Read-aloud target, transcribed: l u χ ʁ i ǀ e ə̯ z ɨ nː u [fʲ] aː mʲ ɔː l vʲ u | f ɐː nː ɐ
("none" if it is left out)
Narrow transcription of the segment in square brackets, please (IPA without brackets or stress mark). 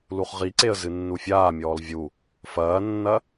fʲ